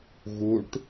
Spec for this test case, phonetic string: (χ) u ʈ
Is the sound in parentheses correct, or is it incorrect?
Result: incorrect: ɣ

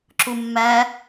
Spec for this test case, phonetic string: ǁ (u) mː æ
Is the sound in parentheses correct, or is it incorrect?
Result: correct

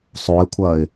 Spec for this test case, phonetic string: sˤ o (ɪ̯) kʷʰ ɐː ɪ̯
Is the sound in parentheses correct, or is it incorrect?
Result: correct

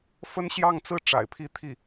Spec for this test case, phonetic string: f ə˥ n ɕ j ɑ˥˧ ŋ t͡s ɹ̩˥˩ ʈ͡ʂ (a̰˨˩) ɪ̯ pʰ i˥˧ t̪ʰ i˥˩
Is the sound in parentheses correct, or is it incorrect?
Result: correct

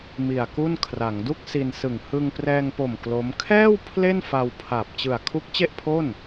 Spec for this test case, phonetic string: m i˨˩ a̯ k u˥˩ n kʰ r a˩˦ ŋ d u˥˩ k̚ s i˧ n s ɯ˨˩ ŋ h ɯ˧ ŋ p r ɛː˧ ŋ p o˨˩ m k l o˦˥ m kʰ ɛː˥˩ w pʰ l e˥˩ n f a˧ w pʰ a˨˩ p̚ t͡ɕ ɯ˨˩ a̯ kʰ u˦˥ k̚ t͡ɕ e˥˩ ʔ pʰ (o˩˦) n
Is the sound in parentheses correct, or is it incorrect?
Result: incorrect: o˥˩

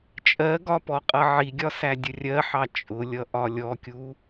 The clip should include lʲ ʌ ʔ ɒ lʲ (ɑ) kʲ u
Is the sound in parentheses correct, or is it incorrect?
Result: incorrect: ɔ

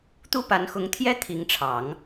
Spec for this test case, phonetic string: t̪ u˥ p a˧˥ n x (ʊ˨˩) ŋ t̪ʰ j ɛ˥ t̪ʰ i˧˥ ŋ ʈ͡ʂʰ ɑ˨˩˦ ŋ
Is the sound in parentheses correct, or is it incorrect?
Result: incorrect: ʊ˧˥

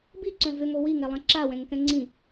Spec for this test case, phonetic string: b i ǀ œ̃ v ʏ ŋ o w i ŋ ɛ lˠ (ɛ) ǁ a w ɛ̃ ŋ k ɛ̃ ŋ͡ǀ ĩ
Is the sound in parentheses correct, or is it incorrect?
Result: incorrect: ɛ̃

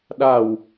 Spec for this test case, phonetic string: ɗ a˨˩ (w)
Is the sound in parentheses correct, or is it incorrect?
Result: correct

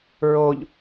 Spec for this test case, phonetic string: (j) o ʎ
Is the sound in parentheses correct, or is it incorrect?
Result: incorrect: ɹ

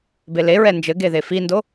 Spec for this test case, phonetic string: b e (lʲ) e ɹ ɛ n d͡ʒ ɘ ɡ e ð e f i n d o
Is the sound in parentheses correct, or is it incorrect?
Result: incorrect: l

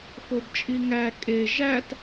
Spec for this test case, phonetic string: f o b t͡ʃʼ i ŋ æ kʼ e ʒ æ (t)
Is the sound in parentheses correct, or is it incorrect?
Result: correct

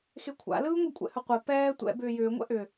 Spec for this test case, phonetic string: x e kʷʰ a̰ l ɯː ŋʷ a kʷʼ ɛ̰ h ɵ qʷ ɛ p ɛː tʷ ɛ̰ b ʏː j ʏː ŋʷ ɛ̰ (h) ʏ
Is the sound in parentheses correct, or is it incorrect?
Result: incorrect: ʔ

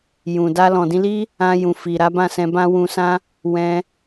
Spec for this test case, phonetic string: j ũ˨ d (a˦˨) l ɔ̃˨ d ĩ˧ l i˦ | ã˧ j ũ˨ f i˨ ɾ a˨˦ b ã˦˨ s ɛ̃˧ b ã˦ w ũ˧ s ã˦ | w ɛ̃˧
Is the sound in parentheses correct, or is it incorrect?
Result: incorrect: a˧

